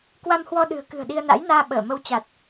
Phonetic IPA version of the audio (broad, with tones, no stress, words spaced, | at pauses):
kwa˧mhwɔ˧ɗɨ̤˨˩ə̯ kɨ̤˨˩ə̯ɗi˧ə̯na̰˧˥jnaː˧ ɓəː˧˩mə˧w t͡ɕa˨˩t̚